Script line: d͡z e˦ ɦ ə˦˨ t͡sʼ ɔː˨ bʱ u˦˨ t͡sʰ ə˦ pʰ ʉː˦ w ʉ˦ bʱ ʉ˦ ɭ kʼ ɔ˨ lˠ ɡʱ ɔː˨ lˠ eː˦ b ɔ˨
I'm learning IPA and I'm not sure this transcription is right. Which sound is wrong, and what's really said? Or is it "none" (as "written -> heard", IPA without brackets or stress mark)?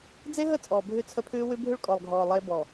u˦˨ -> ʉ˦˨